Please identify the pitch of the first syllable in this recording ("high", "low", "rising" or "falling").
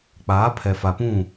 rising